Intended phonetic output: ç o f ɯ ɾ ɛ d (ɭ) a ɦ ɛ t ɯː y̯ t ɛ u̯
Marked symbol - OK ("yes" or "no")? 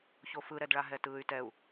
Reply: yes